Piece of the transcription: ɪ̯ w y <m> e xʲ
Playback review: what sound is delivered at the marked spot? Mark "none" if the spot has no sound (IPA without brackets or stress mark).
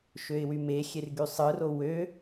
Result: m